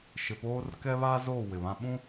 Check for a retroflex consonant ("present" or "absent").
absent